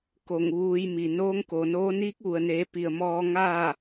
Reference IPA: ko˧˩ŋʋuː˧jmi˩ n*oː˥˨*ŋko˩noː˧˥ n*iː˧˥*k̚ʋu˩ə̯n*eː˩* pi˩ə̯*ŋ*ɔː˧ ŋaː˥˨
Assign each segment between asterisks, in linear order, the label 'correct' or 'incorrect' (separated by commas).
incorrect, correct, incorrect, incorrect